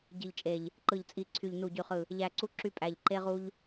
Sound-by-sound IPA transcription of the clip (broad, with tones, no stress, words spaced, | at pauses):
ɟi˨˩ʎt͡ʃʼe˨˩ʎ | ǃɯ˨˩ʎt͡sʼi˨˩ǀʰy˨˩ʎ nu˨˩ɟy˨˩χɯ˨˩ | ʎæ˨˩ǀu˧ ǁy˧pʼæ˨˩ʎ ǃe˧ʁu˧ʎ